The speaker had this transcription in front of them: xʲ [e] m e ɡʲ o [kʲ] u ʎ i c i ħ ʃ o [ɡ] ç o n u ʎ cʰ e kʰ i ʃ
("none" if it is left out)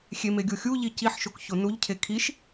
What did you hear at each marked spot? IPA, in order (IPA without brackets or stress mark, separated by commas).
e, xʲ, k